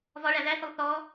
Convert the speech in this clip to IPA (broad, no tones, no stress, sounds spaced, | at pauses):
v ɒ ɭ æ ð æ θ ʊ lˠ θ ɔ